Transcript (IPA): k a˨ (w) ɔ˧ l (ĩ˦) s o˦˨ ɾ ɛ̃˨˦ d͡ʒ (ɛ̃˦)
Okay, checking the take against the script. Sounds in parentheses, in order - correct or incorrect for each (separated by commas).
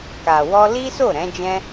correct, incorrect, correct